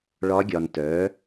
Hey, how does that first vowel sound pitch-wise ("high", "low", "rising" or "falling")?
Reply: rising